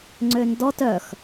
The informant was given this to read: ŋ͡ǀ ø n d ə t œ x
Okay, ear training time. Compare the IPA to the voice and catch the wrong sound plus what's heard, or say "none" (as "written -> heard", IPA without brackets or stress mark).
ə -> ɔ